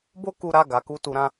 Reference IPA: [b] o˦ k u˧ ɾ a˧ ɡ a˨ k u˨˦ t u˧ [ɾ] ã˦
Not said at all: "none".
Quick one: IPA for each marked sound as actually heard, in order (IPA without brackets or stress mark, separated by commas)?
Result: b, ɾ